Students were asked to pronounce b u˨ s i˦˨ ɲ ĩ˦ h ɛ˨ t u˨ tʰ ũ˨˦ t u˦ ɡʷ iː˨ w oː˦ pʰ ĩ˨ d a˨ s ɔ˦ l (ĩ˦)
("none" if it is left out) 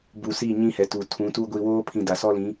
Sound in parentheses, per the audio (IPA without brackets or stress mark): ĩ˨˦